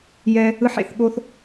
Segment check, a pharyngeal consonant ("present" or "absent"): present